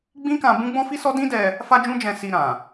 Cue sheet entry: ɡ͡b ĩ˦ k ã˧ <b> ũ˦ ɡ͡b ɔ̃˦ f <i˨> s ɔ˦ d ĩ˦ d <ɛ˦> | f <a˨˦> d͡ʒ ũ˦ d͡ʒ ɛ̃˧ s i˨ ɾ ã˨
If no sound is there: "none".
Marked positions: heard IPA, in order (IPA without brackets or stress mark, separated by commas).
b, i˦, ɛ˧, a˦